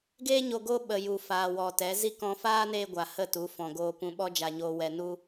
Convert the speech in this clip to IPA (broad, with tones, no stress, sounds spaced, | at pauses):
ɡ eː˦ ɲ o˧ ɡ o˧ ɓ ə˨ j u˨ f aː˨ w ɔ˨ t ɛ˨˦ z i˦ k ɔ̃˧ f aː˦ n eː˧ ɡʷ a˨ h ə˦˨ t u˨˦ f ɔ̃˨ ɡ oː˧ p ũ˧ ɓ ɔ˦ d͡ʒ a˧ ɲ oː˧ w ɛ˧ n u˦